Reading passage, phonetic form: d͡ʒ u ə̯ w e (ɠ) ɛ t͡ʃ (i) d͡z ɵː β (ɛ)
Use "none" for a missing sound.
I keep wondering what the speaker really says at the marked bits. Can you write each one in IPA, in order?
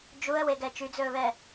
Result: ɡ, y, ɛ

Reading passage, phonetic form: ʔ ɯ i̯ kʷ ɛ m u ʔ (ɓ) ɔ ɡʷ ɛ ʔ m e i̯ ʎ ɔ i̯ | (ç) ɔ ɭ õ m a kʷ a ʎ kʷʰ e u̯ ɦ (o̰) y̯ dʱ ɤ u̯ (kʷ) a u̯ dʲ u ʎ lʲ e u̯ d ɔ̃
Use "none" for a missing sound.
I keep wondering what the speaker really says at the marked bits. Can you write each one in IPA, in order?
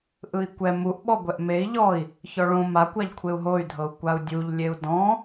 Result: ɓ, ç, o, kʷ

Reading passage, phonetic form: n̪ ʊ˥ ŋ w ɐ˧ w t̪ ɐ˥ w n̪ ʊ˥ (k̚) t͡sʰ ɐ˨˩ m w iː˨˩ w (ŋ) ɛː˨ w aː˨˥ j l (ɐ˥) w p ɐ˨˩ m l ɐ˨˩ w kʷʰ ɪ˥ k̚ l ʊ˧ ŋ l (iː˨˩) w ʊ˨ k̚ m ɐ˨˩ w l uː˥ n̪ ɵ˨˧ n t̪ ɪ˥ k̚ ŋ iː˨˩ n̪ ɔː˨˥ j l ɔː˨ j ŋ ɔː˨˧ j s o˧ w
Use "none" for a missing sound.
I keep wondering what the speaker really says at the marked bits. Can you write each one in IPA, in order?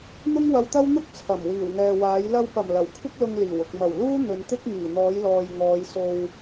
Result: k̚, ŋ, ɐ˧, iː˨˩

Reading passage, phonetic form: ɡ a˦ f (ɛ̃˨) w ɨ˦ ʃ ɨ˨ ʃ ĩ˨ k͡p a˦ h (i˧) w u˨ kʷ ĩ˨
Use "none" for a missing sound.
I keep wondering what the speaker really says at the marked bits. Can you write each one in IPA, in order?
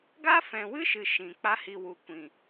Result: ɛ̃˨, i˧

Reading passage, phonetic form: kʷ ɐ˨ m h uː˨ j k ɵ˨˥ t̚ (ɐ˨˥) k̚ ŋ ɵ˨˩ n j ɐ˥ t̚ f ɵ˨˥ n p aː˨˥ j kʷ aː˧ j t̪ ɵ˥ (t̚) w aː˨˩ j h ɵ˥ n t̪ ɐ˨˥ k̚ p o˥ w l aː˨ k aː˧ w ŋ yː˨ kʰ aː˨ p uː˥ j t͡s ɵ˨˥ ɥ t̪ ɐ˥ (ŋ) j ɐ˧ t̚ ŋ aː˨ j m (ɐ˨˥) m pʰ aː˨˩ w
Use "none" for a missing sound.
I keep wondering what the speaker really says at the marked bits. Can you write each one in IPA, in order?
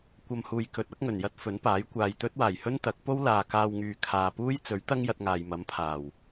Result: ɐ˨˥, t̚, ŋ, ɐ˨˥

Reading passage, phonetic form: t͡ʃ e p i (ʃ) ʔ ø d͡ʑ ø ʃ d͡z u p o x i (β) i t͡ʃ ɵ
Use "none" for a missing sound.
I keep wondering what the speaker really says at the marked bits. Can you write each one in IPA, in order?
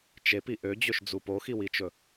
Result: none, w

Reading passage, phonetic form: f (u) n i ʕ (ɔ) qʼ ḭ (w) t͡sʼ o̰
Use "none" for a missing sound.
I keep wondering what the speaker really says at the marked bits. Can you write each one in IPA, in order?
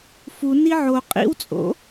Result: u, o, w

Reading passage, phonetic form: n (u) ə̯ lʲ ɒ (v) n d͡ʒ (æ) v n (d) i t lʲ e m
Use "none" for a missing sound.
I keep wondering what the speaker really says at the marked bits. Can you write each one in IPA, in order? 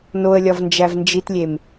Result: o, v, æ, d͡ʒ

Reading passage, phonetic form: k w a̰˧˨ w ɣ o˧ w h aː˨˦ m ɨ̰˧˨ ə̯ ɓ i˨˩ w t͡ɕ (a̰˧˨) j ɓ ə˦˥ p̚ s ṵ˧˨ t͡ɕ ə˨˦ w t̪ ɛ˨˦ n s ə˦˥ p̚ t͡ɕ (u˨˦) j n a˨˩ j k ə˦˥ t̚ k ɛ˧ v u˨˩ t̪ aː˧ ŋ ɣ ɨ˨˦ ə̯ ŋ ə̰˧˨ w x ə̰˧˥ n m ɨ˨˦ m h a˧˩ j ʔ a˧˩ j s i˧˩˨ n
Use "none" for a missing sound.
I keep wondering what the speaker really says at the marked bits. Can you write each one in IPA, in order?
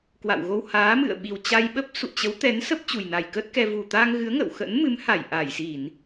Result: a˧, u˨˩

